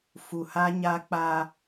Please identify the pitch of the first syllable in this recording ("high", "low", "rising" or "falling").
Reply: low